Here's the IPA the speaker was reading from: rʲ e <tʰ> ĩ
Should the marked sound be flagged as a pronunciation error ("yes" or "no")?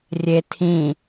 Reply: no